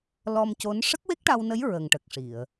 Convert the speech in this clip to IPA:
l ɔ˧ m c o˧˥ n ʂ ə˦˥ k̚ w e˦˥ k̚ ʈ a˧ w n ə˧˥ j ɹ ə˨˩ ŋ ʈ ə˨˩ k̚ ʂ i˨˩˨ ə̯

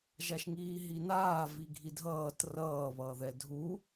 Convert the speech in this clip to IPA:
ʒ a ʃ ŋ iː ɦ i n aː v i ɡʱ i dʱ ʌː t r ʌː β ʌː ð ɛ dʱ u

